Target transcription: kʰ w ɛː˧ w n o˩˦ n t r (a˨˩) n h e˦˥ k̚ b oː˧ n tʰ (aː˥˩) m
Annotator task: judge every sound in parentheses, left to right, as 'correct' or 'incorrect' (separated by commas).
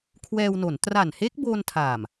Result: correct, incorrect